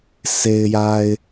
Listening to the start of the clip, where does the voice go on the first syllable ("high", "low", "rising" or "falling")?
low